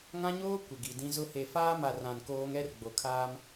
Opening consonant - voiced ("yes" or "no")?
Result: yes